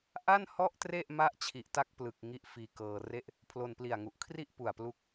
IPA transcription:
ʔ a˥˩ n h ɔ˥˩ ʔ t r e˥˩ ʔ m a˦˥ ʔ t͡ɕʰ i˨˩ ʔ t a˥˩ k̚ p l ɯ˨˩ k̚ ŋ i˦˥ ʔ f iː˧ k ɤː˧ r e˥˩ ʔ | pʰ l o˧ n p l i˨˩ a̯ ŋ u˨˩ ʔ kʰ r i˥˩ ʔ p u˨˩ a̯ p l u˦˥ k̚

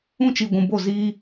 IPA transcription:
ũ˦ t͡ʃ i˨ ɡʷ ũ˨ b o˦˨ z iː˦

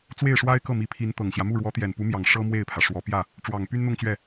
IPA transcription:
t͡s w e˥˩ ɪ̯ ʂ w a˥ ɪ̯ k ɤ˥˩ m i˧˥ pʰ i˧˥ n t̪ ɤ˨˩ ŋ ɕ j ä˦ m u˥˩ ɻ w ɔ˧˥ t̪ j ɛ˨˩ n p u˧˥ m j ɑ˨˩ ŋ ʂ ɤ˥ m w e˥˩ ɪ̯ pʰ ä˩ ʂ w ɔ˧˥ p j ä˥˩ | ʈ͡ʂ w ɑ˨˩ ŋ p y˥ n n̪ ʊ˥˧ ŋ t͡ɕ ɥ ɛ˥˩

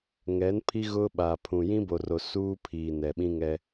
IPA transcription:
ŋ ɛ˨˦ n pʰ i˦ ɣ ʊ˦ ɓ aː˨ pʰ ũ˨ j ĩ˦ b o˨ r o˨ s uː˦ pʰ iː˨ n ɛ˨ ɓ ĩ˦ ŋ ɛ˦

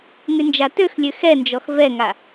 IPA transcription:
ŋ y n d͡ʒ a t ø x lʲ ø x ɛ n d͡ʒ ɔ x v ɛ ŋ a

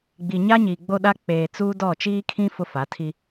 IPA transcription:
ɡ͡b i˨ ɲ a˦ ɲ iː˨ ɡ͡b o˦ ɗ a˦ k͡p eː˨ t͡s uː˦ d ɔ˦˨ t͡ʃ iː˦ kʰ ĩ˦ f ʊ˦ f a˨˦ tʰ i˦

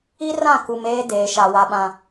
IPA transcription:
i˦ r ã˦˨ k u˨ m eː˦ d eː˨ ʃ a˨ w a˨ ɓ ã˨

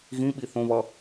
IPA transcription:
ɣ ĩ ɓ i θ õ β ʌ

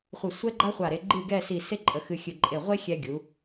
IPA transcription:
χʷ ə˧˩ sʷ ɛ˥ ɡ͡ǃ a˥ χʷ a˧˩ ɾ e˧ ɡ͡ǃ ɨ˥˧ ɡ ɛ˥˧ s i˧˩ s e˥ ǃʼ ə˧ x ɨ˧ xʲ ɨ˧˩ ǃʼ e˧˩ ʁʷ e˥ xʲ ɛ˧ ɡʲ u˩˧

